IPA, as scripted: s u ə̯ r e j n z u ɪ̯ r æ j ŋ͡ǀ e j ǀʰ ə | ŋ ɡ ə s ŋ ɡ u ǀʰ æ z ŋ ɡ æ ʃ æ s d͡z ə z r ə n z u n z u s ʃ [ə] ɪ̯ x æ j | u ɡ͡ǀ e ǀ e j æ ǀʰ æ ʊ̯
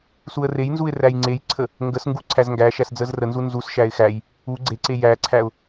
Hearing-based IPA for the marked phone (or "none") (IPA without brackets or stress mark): æ